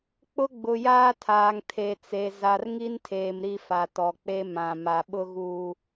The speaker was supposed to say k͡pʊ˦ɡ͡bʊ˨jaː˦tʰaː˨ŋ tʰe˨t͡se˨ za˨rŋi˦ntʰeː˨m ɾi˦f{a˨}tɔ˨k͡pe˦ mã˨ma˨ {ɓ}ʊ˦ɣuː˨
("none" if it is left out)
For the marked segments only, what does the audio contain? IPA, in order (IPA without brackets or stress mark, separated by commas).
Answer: a˨, ɓ